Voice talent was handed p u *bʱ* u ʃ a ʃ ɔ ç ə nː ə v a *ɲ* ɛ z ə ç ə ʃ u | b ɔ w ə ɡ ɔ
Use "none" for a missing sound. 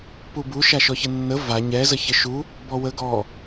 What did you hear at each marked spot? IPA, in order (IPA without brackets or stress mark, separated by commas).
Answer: b, ɲ